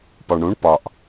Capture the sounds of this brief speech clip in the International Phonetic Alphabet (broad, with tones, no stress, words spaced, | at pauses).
pɒ˨ɳɽũ˨˦ɳ pɒ˨ʔ